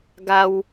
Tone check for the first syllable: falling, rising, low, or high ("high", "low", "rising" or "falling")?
high